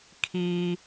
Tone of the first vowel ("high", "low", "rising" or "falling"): high